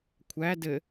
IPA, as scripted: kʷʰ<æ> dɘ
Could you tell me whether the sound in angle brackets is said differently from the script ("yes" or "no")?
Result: no